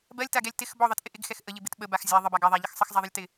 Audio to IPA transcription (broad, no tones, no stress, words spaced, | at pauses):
bɜlʲtaɡɛlʲ tɪx bɔðˤɜtʔɪ ʔɪɡxɛx ʔəʎɪbɪt ɓəbax zʲa ðˤəbaɡ ɛðˤaʎɪx sˤəxzˤaðˤəlʲtɪ